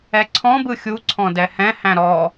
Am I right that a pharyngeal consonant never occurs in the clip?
yes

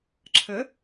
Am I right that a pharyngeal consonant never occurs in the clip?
yes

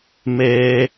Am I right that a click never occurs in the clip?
yes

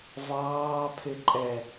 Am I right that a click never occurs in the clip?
no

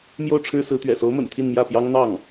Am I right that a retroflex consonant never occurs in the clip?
no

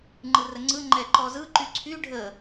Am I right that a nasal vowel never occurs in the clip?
yes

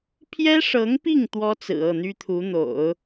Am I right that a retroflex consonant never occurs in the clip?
no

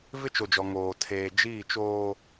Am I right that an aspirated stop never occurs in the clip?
no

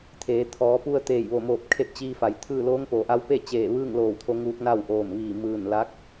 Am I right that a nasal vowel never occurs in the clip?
yes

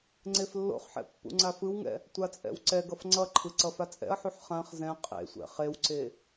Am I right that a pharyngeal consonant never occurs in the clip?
no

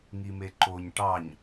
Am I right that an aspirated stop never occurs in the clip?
yes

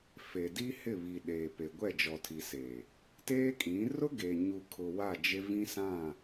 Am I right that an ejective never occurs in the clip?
no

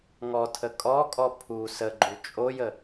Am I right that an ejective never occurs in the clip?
no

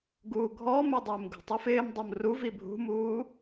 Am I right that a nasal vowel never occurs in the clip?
yes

